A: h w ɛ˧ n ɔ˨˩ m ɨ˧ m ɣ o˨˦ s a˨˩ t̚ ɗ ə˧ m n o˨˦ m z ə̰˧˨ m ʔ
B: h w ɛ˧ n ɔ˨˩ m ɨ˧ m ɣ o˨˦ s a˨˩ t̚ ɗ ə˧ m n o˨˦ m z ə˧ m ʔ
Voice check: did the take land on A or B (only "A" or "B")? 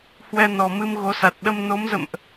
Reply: A